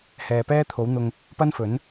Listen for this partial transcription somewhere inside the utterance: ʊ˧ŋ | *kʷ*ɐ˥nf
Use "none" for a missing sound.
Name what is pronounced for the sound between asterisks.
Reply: p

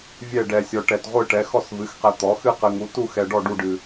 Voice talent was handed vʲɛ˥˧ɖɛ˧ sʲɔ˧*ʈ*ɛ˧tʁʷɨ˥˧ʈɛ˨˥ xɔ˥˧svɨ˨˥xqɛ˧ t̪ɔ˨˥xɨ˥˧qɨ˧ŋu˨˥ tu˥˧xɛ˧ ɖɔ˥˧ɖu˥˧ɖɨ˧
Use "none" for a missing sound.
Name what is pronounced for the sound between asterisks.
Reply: ʈ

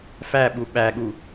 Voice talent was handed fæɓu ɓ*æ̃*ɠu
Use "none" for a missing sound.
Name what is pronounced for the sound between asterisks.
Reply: æ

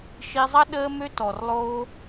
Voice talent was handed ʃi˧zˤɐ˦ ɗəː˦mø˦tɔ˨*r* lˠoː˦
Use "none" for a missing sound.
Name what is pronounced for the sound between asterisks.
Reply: r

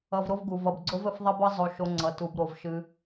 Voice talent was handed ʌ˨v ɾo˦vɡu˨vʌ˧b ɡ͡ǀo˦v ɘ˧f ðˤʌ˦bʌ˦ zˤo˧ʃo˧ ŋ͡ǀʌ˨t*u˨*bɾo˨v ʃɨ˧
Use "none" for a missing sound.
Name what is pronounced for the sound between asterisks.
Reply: u˨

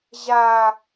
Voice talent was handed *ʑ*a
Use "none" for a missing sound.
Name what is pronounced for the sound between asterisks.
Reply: ʑ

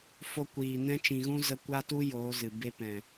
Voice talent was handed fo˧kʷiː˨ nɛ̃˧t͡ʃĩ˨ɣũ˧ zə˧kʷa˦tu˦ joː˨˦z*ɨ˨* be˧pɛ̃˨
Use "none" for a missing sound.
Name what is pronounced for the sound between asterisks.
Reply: ɨ˨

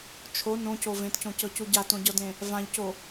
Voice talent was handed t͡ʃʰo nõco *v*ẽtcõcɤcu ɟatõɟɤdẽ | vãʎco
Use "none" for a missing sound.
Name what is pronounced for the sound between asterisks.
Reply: v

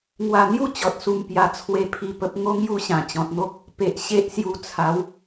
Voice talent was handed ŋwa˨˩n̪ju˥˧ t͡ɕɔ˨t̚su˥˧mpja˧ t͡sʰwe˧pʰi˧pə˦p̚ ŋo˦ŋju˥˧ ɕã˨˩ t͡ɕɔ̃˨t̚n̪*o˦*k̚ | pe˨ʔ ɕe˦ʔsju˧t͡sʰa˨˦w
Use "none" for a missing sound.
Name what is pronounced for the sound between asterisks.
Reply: o˦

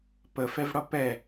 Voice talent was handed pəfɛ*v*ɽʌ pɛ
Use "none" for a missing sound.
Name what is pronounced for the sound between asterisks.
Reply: v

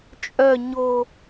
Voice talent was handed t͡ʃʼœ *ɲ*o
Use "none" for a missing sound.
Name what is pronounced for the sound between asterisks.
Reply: ɲ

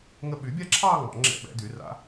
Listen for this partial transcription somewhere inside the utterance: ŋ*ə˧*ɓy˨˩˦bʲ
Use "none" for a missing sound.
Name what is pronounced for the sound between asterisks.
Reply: ə˧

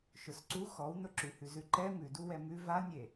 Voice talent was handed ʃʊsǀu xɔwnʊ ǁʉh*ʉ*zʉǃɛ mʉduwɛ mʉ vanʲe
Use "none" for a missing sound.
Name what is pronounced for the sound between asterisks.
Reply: ʉ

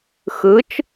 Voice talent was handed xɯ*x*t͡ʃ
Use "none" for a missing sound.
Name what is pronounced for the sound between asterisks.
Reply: none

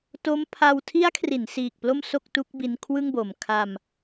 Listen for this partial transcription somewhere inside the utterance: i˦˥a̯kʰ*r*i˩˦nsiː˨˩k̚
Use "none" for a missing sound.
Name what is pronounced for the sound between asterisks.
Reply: r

